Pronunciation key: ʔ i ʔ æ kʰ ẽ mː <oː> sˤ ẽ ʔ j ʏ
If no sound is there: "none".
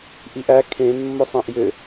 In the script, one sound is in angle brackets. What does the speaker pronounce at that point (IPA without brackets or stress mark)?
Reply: o